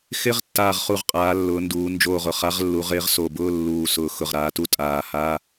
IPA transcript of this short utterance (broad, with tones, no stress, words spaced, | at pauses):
xɪ˧˥˧ʁ tːaː˧˩ʁχu˧˩ʁqʼaː˩˧ lːʊː˩˧nduː˩˧ nd͡ʒoː˧˩ʁʊ˧˩ χa˨˥ʁlːu˩˧ʁ ɪː˨˥ʁso˧˩bʊː˧˥˧ lːuː˧˩sʊː˧˩ xʊ˧˩ʁɾaː˨˥tu˧˥˧ tʼaː˧˩haː˧˥˧